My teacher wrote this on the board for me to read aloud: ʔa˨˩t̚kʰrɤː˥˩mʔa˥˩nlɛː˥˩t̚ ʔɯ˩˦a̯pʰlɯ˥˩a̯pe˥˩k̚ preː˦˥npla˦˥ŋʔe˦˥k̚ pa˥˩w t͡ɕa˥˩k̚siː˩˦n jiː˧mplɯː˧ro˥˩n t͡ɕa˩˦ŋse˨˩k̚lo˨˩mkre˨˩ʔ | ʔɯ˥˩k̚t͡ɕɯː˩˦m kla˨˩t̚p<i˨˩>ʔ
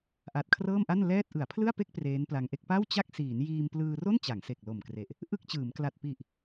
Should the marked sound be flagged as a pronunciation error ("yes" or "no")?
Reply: no